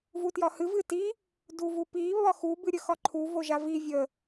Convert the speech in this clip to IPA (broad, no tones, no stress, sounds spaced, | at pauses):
v u t j ɒ h ɨ v ɨ t i | d u v u p i β ɒ x u b ɨ ɾʲ ə x ɒ ǃʰ u v o ʒ a v i vʲ ə